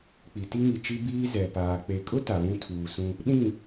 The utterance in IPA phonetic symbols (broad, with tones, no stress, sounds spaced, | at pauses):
k͡p i˨ t i˦ ŋ i˨ t͡ʃ i˦ b iː˦ z ɛ˨ p aː˨ k͡p e˨ kʼ ʊ˦ t a˨ β ũ˦ tʰ uː˨ s ũ˦ | ɗ ĩ˦˨